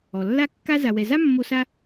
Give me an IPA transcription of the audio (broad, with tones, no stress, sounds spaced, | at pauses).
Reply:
ɔ˩ lː a˦ kː a˦ z a˨ w ɛ˨ z a˥ mː o˦ s a˥